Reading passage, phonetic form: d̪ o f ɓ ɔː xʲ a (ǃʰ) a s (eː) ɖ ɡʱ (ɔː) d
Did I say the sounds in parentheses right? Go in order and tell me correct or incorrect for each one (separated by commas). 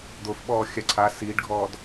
incorrect, incorrect, correct